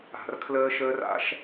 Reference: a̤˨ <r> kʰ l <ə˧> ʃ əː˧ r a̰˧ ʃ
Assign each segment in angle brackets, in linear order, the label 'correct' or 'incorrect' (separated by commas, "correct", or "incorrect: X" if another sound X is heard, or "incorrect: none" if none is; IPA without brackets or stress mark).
correct, incorrect: əː˧